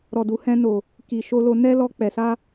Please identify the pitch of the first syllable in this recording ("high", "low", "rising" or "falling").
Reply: low